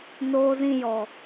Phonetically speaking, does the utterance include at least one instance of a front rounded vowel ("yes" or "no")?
no